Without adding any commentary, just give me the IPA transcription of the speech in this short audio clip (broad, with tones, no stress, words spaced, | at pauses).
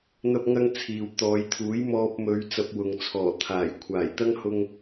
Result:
n̪ɐ˥p̚ŋɐ˥ŋ t͡sʰiː˨wt̪ɔː˨˧jt̪ʰuː˨˥j mɔː˧p̚ mɵ˨˧ɥ t͡sɐ˧p̚wʊ˨ŋ t͡sʰɔː˨˩ t̪ʰaː˨˩j kʷʰaː˨˩jt̪ɐ˥ŋhʊ˧ŋ